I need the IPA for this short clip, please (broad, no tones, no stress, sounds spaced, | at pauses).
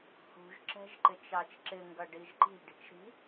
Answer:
h ṳ ʒ ǁ ɛ̤ ʒ ǃ ɪ t͡ʃ ɑ t͡ʃ ǁ ɪ ŋ ɡ ʌ ɖ i ʒ ǃ i̤ ɖ i̤ t͡ʃ ɾ i̤